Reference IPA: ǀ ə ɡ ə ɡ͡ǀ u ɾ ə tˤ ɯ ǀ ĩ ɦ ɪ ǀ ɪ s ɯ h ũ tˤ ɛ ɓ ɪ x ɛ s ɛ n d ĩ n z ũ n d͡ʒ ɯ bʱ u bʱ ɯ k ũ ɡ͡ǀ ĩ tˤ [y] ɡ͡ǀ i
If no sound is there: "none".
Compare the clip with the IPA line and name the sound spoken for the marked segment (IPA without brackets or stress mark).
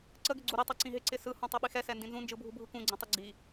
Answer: ɪ